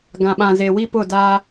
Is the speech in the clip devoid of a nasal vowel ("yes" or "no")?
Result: no